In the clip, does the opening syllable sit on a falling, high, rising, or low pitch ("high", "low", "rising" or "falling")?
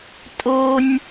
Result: high